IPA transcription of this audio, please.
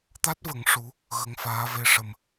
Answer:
t̪a˦˥t̚və˨˩˦ŋ ʂu˧˥ | ɣə˧˥ŋfaː˧˥ve˧ ʂə˨˩m

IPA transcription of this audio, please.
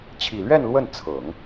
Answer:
t͡ɕʰi˨˩lɥɛ˥˧n lwə˥˩n t͡sʰɤ˨˩˦ŋ

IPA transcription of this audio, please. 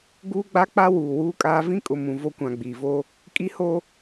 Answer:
ɡuː˦ɡ͡ba˦k͡pa˦ wuː˨wuː˦kʼaː˦ vĩ˦kʼʊ˨ mũ˨vo˦kʷã˨ ɡ͡biː˨vo˦ | kʼi˦ho˦

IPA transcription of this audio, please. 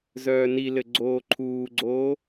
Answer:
zœːnilɘ ɡ͡ǀoːǃʰuːɡ͡ǀoː

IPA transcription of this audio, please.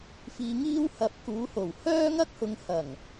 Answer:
fiː˧ŋiː˥w hɐ˧p̚ kuː˨˧ho˨˩whœː˥ ŋɐ˥k̚hʊ˨˧ŋhɐ˨˩ŋ

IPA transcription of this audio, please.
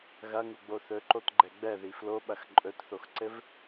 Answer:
ɣɐŋuɡ͡bo θɵǃotɡ͡ǃɛ ɡ͡bɛði floɓɐx ǃʼɵtθoxǀɘv

